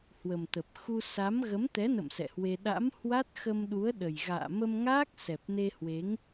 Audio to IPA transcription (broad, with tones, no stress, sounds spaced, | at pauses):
h w ə˨˩ m t̪ ə˨˩ p̚ x u˧ s a˨˦ m ɣ ə˨˦ m t̪ ɛ˨˦ n ə̰˧˨ m s ɛ̰˧˨ h w e˧ ɗ a̰˧˥ m h w a˦˥ t̚ x ə˧ m ɗ u˨˦ ə̯ ɗ ə˨˩ j ɣ a̰ː˧˨ m ə˧ m ŋ aː˦˥ k̚ s ɛ˨˩ p̚ n e˧ h w e˨˦ ŋ